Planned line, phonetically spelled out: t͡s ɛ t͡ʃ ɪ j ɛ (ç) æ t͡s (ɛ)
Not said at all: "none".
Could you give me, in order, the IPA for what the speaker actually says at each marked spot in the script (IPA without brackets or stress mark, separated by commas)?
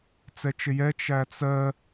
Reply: t͡ʃ, ɜ